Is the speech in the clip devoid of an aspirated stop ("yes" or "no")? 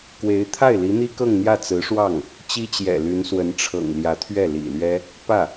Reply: no